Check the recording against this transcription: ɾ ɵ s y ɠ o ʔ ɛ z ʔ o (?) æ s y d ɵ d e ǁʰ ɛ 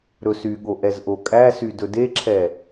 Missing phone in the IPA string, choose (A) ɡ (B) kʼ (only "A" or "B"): B